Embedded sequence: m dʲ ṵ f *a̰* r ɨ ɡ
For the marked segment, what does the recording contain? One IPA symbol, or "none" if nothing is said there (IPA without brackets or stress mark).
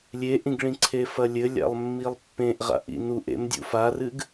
a